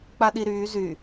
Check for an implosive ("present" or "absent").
present